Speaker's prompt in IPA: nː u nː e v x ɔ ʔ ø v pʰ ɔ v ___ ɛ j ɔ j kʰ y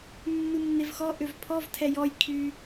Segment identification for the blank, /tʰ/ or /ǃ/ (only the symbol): tʰ